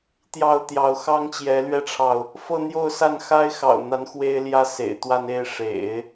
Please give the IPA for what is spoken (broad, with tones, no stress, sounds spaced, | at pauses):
t̪ j ɑ˥˩ ʊ̯ t̪ j ɑ˧˥ ʊ̯ x ɑ˥ ŋ t͡ɕ j ɛ˧˥ l ɥ ɛ˥ ʈ͡ʂʰ ɑ˨ ʊ̯ | f ɤ˥˧ n̪ j o˥˧ ʊ̯ s a˥˩ n x a˥ ɪ̯ x ɑ̰˨˩ ʊ̯ n̪ a˧˥ n x w e˥ ɪ̯ l j ä˥ s ḛ˨˩ ɪ̯ t̪ w a˥˧ n e˥˩ ɪ̯ ʂ ḛ˨˩˦ ɪ̯